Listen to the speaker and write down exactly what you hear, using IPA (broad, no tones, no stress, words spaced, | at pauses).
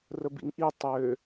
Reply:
rəbḭŋʔi tˤø